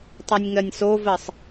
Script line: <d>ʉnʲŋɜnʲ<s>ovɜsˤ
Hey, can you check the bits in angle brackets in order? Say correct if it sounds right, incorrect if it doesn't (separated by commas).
incorrect, correct